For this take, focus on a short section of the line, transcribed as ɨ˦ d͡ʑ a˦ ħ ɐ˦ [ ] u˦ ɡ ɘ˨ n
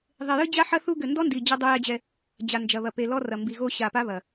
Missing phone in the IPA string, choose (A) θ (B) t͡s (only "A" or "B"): A